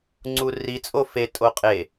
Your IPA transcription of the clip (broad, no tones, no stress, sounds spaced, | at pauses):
ŋ͡ǀ u r i t͡sʼ o f e tʼ o qʼ e